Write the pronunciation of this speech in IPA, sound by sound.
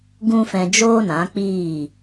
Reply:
ɡ ũ˦ f ɛ̃˧ d͡ʒ oː˦ n ã˨˦ k͡p iː˦˨

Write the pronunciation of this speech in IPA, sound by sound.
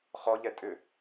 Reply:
χ ɔ ʎ ɛ tʼ ʏ

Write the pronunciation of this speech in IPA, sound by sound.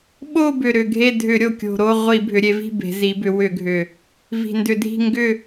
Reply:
ɓ o˦˨ b ʏ˨˩ ɾ ʏ˨˩ ɡʱ e˦˨ dʱ ʏ˧˩˧ ɾʲ o˨˩ kʲ o̤˨˩ ɾ o˦˨ ʁʷ i˧˩˧ bʱ ʏ˩˧ ɾʲ e˩˧ v i̤˦˨ b e̤˩˧ z i˩˧ b ʏ˩˧ w ʏ˧˩˧ ɡʱ ʏ˨˩ | v i̤˨˩ n d ʏ˧˩˧ dʱ i̤˦˨ ŋ ɡ ʏ˦˨

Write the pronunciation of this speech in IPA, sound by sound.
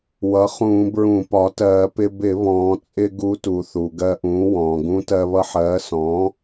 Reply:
w ʌ˩˥ χ ũː˧˩˧ b ɹ ũ˧˩˧ p ɒ˩˥ t ɜː˧˩˧ p ɪ˧ b ɪ˧˩˧ β ɔ̃ː˩˧ t͡sʼ ɪ˧ ɡ u˧˥ t u˩˧ θ u˩ ɡ ɜ˧ ʔ ũː˩˥ w ɔ̃ː˩ ɡ ũ˧˥ t ɜ˧ β ʌ˧ ħ ɜː˩˥ s ɔ̃ː˩˥

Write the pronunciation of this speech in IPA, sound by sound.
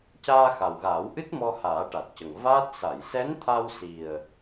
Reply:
c aː˧ x a˨˩ w ɣ aː˨˩˦ w ʔ ɨ˦˥ t̚ m ɔ˧ h aː˨˩˦ ʈ a˨˩ t̚ c ə˨˩ ŋ v aː˦˥ t̚ s a˨˩˨ j s ɛ˧˥ n t̪ʰ a˧ w s i˨˩ ə̯

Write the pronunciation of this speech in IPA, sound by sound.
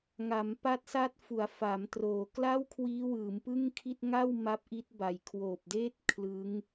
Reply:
ŋ a˩˦ m p a˦˥ t̚ s a˦˥ t̚ f u˩˦ a̯ f a˩˦ m t r oː˩˦ k l a˥˩ w kʰ w iː˦˥ w ɯː˩˦ m p ɯ˥˩ ŋ kʰ i˥˩ t̚ ŋ a˥˩ w m a˦˥ p̚ ʔ i˦˥ t̚ b a˨˩ j kʰ w oː˨˩ p̚ d eː˥˩ t̚ kʰ l ɯ˦˥ ŋ

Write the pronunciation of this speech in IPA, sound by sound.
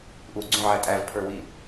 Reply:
ʔ u ɡ͡ǀ ũ ʕ æ tʼ æ v pʰ ə˞ w i

